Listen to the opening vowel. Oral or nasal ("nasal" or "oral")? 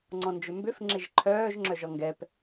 nasal